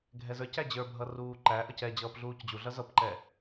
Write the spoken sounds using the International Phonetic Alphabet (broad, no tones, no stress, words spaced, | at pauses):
ɡʱɛzə˞cæ d͡ʑə˞bʱʌ ruːǃæʔʌc ɛ d͡ʑʌːpɮuːcd͡ʑuɮʌ zʌpǃɛ